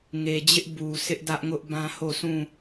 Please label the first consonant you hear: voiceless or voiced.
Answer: voiced